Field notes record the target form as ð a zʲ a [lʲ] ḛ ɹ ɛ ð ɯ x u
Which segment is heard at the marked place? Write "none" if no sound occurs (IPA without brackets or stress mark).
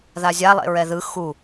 lˠ